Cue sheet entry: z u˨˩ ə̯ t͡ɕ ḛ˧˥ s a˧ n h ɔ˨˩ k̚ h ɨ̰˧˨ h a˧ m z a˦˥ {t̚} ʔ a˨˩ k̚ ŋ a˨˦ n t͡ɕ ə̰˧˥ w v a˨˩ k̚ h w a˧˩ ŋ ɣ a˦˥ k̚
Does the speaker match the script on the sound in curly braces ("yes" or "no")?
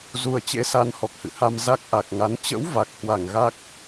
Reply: no